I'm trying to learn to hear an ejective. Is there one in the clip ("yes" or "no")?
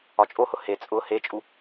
yes